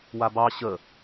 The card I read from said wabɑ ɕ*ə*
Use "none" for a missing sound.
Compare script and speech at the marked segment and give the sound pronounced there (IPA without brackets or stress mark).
ə